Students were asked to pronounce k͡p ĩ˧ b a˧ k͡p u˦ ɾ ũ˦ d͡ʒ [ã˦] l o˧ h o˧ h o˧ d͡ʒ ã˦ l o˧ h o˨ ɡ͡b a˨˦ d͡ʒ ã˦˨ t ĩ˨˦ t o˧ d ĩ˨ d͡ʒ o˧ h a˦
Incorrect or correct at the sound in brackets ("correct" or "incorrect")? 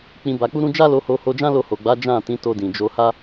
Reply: incorrect